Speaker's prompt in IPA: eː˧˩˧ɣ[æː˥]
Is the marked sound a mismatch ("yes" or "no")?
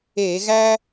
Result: no